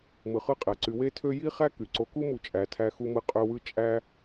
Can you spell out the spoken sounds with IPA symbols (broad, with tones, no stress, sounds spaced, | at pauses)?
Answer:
m ɯ˩ χ ɯ˦ qʼ æ˩ ǀ y˨ w e˥ tʰ ø˥ j i˥ χ æ˥ k y˩ ǀ o˨ k u˥ m u˨ t͡ʃʼ æ˨ tʰ æ˦ x u˦ m ɯ˦ qʼ ø˦ w ɯ˥ t͡ʃʼ æ˥